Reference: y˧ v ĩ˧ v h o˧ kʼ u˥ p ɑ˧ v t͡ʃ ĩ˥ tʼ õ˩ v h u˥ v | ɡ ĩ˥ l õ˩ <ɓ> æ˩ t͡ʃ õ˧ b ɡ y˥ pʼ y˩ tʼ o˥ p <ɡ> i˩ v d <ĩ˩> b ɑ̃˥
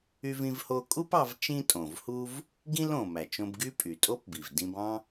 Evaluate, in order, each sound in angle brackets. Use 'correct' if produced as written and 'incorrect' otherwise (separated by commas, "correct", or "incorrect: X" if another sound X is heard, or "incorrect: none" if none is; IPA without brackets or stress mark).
incorrect: m, incorrect: b, incorrect: ĩ˧